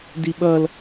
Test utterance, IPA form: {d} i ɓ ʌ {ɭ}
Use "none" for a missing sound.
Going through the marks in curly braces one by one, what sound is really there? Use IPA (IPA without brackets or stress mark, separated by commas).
d, l